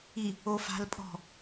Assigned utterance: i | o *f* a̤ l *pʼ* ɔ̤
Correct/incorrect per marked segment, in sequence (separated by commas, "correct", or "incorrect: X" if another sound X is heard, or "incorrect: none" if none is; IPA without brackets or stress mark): correct, correct